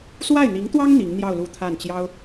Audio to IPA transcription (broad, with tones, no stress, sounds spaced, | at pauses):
s w a˥˩ ɪ̯ n̪ i˧˥ ŋ t̪ w ɑ˥ ŋ n̪ i˧˥ ŋ n̪ j ɑ˥˧ ʊ̯ l u˥˧ t̪ʰ a˥˩ n t͡ɕ j ɑ˥ ʊ̯